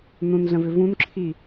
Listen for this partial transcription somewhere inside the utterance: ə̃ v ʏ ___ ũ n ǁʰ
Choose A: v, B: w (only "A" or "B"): A